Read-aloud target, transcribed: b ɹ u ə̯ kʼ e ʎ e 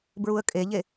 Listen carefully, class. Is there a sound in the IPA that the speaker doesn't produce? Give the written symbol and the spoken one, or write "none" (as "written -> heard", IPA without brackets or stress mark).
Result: none